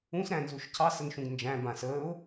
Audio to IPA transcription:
ũ s ɾ æ̃ n z u ʃ cʰ ɑ s ə n ʃ ũ ɡ n d͡ʒ æ̃ b ã s əː ʊ̯

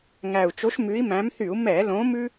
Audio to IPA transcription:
ŋ æ˨˩ u̯ t͡ʃ o˨˦ ʃ m ʉ˨˦ i̯ m æ̃˨˦ m θ y˧˩˧ u̯ m ɛ˧˩˧ l õ˨˦ m ʉ˥

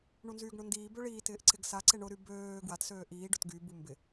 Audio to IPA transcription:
ɳ u n z yː ɡ ɳ ʊ n d iː b ø ɭ iː t ɪː ʔ ǀ ɪ ɡ s a ǀ e ɳ ʊ ɾ y b øː ɡ w a t s øː ʔ iː ɖ ʊ t ɡ y b u m b ɪ

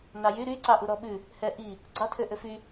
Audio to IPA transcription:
n ɑ j y ɾ y ǀ ɑ ʔ u ɾ ɔ ɓ ʉ | h ɛ ʔ i | ɡ͡ǀ ɑ tʰ ø ʔ ø f y

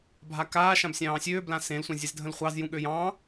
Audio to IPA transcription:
bʱ a k aː ʃ ã b sʲ ɑ̃ː sʲ øː b l ã s ẽ l sʷ ɑ̃ zʲ e z dʱ ə̃ l χʷ ɑ z j ũ ɠ ø j ɑ̃

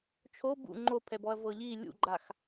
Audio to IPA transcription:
t͡ʃʰ o b ṵ ŋ͡ǃ o pʰ ɛ b ɔ ɐ̯ v ɤ ʎ i lʲ ṵ ɡ͡ǃ a x

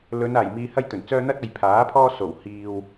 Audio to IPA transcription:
l ɵ˨˧ n aː˨˩ j m iː˧ h ɐ˥ j t̪ ɵ˨˩ n t͡s œː˥ n̪ ɐ˥ t̚ ɐ˨ j pʰ aː˨˥ pʰ ɔː˥ s o˨˩ w h iː˨ w

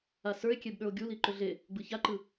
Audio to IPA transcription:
a s ə˞ e̯ kʲ e b ɗ ə˞ o̯ ɡʲ u l i ǃ ʏ ɮ e | ɡ͡b ɯ ç a ǃ ɯ

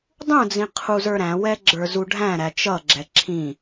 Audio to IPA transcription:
dˤ ũ d͡z ĩ qʰ u z ə˞ ɾ æ̃ w ɛ ɡ͡ǁ ə˞ z u ɖʱ æ̃ ɾ æ t͡ʃ ʌ ɡ͡ǁ ɛ ǁʰ ĩ

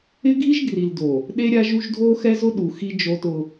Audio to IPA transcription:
ɪ˦ ɡʱ i˦ ʒ ɡ r i˨ l d o˨ | ɗ e˦ ɾʲ a˦ ʒ u˦ ʒ dʱ o˦ x ɛ˦ z ʊ˦ ɗ u˨ x i˦ d͡ʒ o˦ t ʊ˦

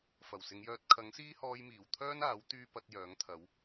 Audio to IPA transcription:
f ɐ˨˩ w s ɪ˨˧ ŋ j œː˧ t̚ kʰ ɐ˨˥ ŋ s iː˥ h ɔː˧ j m iː˨˩ w t̪ʰ œː˥ n aː˨˥ w t̪ yː˥ p ɐ˨˥ t̚ j œː˨˥ ŋ t̪ʰ ɐ˨˥ w

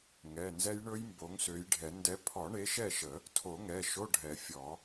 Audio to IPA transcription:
ŋ ɛ˩˧˩ n z ɛ˦˥ j ɳ ɵ˦˥ j m b o˨˦ ŋ s ø˨˦ j ɖʱ ɛ˨˩˦ n d ɛ˨˦ pʰ ɔ˨˩˦ ɳ e˨˦ ʃ ɛ˥˨ ʃ ə˨˩˦ | tʰ o˨˩˦ ŋ ɛ˩˧˩ ʃ o˧˥˧ ɖʱ ɛ˨˩˦ fʲ ɔ˨˩˦

